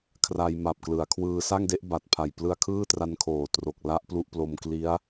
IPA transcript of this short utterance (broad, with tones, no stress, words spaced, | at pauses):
kʰra˧jma˨˩p̚klɯ˩˦a̯kʰwɯː˧ sa˥˩ŋde˦˥ʔba˨˩t̚pʰa˨˩j plɯ˧a̯kʰɯː˥˩tra˧n kʰoː˨˩tro˨˩k̚ la˦˥ʔ plu˦˥ʔplo˧mkli˦˥a̯